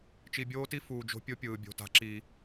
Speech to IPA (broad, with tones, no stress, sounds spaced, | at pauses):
t͡ʃ i˨ bʲ oː˦ t i˦ f uː˨ d͡ʒ o̤˦ pʲ o˦ pʲ ɯː˨ bʲ o̤˨ t a̤˦ ǁ i˦